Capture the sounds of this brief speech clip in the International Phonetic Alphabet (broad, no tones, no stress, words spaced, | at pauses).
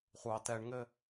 χʷɑ tɛɳŋɘ